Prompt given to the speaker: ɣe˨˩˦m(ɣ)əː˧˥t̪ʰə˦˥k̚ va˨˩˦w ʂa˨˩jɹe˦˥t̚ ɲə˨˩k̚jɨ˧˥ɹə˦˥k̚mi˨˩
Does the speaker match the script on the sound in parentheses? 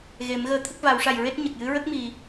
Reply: yes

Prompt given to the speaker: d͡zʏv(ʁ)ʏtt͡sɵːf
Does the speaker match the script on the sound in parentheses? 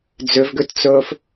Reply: no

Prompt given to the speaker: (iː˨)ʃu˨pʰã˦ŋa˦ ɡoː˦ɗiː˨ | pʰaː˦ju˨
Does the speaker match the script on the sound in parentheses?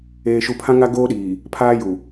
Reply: no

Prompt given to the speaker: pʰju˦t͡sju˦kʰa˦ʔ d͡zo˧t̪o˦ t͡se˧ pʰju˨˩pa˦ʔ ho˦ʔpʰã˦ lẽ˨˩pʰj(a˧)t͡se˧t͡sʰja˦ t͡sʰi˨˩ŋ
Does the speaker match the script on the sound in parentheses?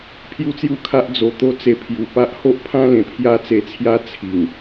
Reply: no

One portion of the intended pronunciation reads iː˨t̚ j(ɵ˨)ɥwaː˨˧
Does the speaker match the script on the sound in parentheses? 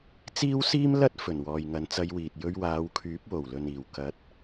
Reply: no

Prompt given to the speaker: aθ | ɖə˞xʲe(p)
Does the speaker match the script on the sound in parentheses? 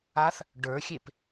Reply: yes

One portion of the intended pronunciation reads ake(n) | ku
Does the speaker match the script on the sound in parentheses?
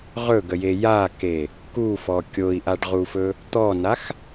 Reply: no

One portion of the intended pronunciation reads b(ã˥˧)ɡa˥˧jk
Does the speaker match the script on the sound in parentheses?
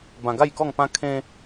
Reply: no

